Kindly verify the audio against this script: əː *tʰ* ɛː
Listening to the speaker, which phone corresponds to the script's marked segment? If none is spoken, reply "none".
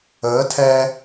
tʰ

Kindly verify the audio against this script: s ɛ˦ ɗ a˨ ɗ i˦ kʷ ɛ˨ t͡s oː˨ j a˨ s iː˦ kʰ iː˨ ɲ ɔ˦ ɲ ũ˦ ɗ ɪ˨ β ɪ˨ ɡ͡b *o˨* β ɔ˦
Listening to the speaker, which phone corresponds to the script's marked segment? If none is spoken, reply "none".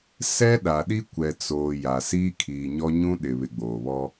oː˨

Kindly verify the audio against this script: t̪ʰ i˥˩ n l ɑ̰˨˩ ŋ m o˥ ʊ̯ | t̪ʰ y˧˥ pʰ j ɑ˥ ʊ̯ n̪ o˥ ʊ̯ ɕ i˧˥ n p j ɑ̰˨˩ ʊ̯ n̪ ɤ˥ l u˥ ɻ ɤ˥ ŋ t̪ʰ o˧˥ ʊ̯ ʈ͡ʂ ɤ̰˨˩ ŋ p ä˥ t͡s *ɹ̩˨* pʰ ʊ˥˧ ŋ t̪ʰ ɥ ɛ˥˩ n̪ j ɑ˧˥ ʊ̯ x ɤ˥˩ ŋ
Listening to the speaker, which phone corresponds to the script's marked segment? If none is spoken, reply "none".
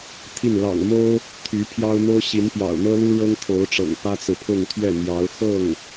ɹ̩˨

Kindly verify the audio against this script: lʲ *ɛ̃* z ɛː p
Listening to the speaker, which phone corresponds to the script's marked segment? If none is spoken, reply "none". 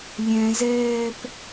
ɛ̃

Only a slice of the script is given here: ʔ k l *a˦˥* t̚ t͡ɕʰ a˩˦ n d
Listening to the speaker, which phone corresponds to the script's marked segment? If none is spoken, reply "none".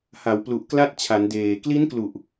a˦˥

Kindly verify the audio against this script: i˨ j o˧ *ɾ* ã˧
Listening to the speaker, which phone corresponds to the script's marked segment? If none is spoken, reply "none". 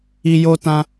t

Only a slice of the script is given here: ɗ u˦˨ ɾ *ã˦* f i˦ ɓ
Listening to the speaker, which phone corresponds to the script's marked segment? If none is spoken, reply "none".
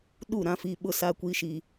ã˦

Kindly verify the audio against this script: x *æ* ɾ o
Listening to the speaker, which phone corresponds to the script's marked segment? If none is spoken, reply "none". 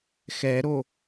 ɛ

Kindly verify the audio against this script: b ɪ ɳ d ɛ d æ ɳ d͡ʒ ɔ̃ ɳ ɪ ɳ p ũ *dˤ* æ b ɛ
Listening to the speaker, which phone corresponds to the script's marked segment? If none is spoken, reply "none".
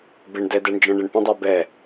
dˤ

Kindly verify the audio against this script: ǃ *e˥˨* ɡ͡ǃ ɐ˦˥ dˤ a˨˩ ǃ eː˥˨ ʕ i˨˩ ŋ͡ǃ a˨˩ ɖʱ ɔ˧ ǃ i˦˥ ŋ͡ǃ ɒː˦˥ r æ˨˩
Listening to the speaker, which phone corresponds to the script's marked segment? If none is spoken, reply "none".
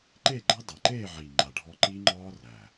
e˥˨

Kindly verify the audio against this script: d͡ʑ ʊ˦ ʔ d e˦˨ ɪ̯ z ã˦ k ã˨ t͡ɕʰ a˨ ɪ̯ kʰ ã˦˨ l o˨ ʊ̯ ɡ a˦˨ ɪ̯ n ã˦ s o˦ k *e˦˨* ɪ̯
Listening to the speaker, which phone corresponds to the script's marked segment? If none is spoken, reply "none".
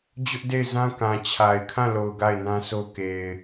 e˨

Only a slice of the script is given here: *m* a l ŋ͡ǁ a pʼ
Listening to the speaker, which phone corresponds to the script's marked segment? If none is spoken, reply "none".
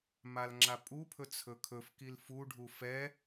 m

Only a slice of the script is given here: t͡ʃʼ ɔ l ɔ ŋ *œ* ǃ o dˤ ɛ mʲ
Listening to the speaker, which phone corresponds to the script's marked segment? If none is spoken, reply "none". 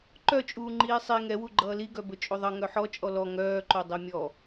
œː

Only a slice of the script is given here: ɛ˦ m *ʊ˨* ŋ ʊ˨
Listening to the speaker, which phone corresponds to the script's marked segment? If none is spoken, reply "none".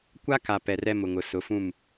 ʊ˨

